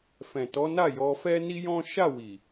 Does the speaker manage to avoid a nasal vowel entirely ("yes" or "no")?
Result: no